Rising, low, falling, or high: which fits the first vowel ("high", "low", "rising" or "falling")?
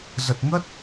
low